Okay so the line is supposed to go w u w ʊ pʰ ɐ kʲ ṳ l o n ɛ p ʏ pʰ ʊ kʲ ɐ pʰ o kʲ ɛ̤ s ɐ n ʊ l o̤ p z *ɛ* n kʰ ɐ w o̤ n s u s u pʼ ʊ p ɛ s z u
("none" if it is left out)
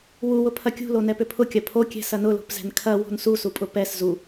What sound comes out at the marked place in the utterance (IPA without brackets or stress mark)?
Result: ɛ̤